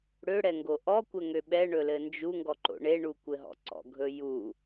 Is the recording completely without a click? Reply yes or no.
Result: no